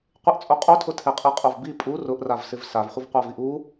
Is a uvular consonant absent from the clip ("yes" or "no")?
no